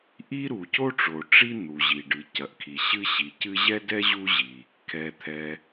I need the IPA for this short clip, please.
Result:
ʔ i˥ ɾ u˩ c o˥ ʈ͡ʂ o˩ ʈ͡ʂ i˥ n̪ u˩ ʑ i˩ ɖ ɨ˩ c ɐ˩ ʔ kʰ i˩ ɕ ɨ˥ ɕ i˩ c ɨ˥ ʑ ɛ˥ d ɛ˥ ʑ u˥ ʑ i˩ | kʰ ɛ˩ t̪ʰ ɛ˩

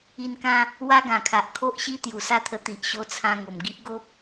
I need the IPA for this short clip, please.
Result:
i˧ n k ã˦ | w a˦ ɡ ã˨˩ kʰ a˨ ʔ kʰ o˦ ʔ ɕ i˦ t̪ j u˨˩ s a˥˧ t̪ʰ ə˧ t̪ i˨ ʔ ɕ o˧ t͡sʰ ã˧ ŋ o˨˩ m ɡ i˦ ʔ ɡ o˦ p̚

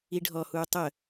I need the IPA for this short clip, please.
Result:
i ɖʱ ɔ h uː tˤ ə

